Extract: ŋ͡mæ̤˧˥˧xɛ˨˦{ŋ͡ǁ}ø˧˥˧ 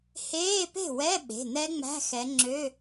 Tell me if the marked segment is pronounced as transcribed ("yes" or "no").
yes